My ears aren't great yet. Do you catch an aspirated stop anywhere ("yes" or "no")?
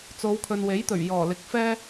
yes